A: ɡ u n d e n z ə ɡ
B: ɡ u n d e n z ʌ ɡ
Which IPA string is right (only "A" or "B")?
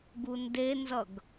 B